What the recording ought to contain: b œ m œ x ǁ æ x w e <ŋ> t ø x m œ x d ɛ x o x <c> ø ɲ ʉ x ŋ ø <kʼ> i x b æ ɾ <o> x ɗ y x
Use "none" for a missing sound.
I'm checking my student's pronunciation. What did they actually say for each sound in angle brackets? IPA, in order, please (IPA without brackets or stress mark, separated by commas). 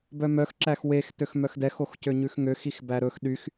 x, c, x, ɵ